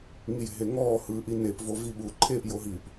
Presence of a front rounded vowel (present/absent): absent